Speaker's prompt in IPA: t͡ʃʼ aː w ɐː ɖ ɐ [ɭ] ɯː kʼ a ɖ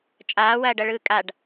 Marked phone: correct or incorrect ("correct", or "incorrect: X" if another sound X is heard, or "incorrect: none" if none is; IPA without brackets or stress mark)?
correct